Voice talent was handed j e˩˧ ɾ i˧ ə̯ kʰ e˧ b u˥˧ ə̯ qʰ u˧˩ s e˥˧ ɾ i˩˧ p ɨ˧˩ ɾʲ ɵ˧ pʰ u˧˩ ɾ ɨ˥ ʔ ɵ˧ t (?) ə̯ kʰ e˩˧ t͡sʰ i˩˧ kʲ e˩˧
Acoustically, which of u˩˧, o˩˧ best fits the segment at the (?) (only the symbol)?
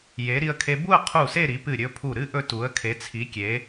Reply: u˩˧